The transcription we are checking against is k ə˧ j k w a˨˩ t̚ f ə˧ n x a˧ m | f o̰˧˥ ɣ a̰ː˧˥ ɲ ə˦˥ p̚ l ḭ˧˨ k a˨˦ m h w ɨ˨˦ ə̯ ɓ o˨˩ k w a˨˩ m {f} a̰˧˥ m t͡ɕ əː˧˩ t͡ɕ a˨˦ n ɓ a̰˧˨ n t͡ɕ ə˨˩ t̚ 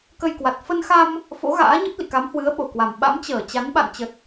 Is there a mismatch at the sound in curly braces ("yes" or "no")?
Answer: yes